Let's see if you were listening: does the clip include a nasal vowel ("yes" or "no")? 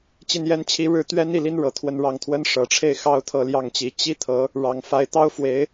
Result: no